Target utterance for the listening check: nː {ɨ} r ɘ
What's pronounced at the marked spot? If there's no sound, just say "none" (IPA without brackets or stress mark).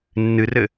ɨ